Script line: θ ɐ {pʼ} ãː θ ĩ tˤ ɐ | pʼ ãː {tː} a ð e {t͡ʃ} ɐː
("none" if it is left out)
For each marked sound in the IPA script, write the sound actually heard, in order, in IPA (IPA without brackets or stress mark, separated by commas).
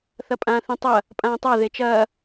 pʼ, tˤ, t͡ʃ